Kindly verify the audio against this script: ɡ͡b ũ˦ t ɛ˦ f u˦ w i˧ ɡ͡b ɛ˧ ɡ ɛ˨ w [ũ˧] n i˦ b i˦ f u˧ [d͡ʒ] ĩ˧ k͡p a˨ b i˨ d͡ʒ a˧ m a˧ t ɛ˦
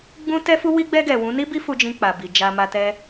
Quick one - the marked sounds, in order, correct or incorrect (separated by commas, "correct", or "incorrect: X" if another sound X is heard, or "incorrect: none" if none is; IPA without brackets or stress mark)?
incorrect: ũ˨˦, correct